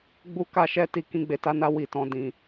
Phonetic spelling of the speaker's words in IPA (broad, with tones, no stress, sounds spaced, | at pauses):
ɡ͡b u˦ k a˦ ʃ ɛ˦ t i˧ k ĩ˧ ɡ͡b e˨ t a˨˦ n a˧ w i˨ t ɔ̃˨ d ĩ˨